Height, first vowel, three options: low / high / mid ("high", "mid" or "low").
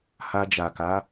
low